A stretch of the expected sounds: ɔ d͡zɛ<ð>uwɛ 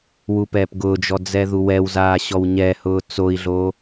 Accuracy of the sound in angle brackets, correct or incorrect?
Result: correct